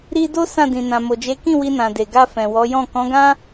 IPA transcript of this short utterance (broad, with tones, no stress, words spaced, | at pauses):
ɾi˦ do˦ sã˦˨dĩ˨nã˨ mo˨d͡ʒe˨˦kĩ˦˨ wi˧nã˨ de˨ɡa˧ fɛ̃˨wɔ˨˦jɔ̃˦˨ kɔ̃˨˦ɡã˦